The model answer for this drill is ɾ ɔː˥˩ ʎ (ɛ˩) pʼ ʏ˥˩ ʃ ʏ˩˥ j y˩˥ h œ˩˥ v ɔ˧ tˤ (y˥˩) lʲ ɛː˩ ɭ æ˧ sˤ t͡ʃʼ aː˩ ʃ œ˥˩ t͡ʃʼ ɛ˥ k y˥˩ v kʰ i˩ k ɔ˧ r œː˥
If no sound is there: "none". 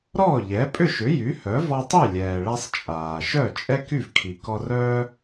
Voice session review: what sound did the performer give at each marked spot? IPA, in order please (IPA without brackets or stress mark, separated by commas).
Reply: ɛ˩˥, y˥˩